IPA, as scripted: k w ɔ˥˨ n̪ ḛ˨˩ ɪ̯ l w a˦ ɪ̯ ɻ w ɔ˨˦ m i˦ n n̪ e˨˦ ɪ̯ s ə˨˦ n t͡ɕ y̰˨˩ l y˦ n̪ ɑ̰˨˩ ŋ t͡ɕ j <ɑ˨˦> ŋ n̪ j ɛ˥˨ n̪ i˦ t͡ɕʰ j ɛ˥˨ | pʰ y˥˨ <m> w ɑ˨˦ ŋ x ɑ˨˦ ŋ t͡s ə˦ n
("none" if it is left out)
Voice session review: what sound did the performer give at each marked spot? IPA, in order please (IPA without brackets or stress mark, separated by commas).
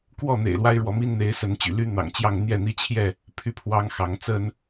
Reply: ɑ˥˨, pʰ